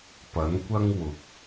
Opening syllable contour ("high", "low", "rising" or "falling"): rising